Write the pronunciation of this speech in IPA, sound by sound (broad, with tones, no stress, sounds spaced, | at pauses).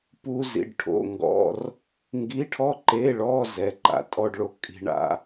p u˥ z ḭ˧˥˧ ɖ ʈʰ o̰˧˥˧ ŋ ɡ ɔ̰˧˥˧ r | ŋ ɡ i˧˥˧ ʈʰ ɔ˥ ǃ e˧˥˧ ɭ ɔ˧˥˧ z ɛ˧˥˧ ǃ a̰˥ tʼ ɔ˥ ɖ ɭ o˧˥˧ kʼ i̤˥ ɳ a̰˥